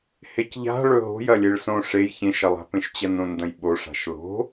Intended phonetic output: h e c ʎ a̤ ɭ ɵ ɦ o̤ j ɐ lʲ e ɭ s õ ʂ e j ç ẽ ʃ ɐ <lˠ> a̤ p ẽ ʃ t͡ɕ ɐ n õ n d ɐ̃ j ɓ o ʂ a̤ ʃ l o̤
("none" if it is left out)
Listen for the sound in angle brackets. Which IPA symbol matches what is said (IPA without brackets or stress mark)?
lˠ